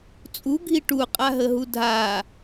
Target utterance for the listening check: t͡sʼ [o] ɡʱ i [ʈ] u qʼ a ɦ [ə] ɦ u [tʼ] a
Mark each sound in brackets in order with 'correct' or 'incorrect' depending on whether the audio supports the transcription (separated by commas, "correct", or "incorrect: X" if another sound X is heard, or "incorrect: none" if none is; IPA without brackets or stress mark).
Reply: incorrect: u, correct, correct, incorrect: dʱ